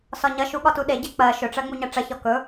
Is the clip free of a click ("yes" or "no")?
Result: yes